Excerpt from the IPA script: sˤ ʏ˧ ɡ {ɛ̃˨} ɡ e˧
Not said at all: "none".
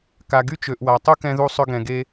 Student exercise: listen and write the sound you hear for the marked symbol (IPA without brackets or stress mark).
ɛ̃˨